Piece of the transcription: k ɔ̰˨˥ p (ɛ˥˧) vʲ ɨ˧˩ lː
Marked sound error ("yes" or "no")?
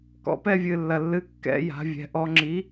no